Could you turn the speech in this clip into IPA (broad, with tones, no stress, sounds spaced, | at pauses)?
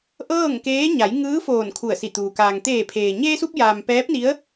ʔ ɤː˥˨ ŋ k eː˧˥ ɲ a˩˧ j ŋ ɯː˧˥ f oː˧˩ n kʰ u˧˩ ə̯ s i˧˩ t̪ uː˩ k aː˩ ŋ t̪ eː˧˩ pʰ eː˩ ɲ eː˧ s u˧ p̚ j aː˩ m p ɛː˧˥ p̚ n i˧˥ ə̯